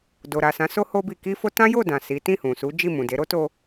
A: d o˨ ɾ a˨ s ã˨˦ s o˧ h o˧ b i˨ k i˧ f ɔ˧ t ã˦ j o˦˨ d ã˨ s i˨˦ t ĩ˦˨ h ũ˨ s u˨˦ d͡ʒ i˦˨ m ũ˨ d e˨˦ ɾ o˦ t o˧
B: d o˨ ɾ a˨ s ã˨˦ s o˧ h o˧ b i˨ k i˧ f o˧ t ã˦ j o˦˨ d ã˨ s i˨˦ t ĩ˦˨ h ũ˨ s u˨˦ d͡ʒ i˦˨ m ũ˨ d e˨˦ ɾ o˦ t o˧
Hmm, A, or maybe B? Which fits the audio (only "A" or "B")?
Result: B